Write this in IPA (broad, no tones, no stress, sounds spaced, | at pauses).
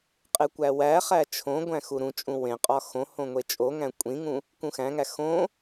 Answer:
qʼ e kʷ æ w æ χ æ t͡ʃʰ õ ɡʷ æ̃ x u ɾ ũ t͡ʃʼ ũ w ẽ qʼ ɒ x õ h õ ŋʷ e t͡ʃʼ o ŋ æ̃ kʷʼ ĩ ŋ ũ | k ũ x æ̃ ŋ æ x õ